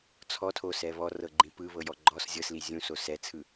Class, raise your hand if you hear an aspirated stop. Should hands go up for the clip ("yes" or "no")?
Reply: yes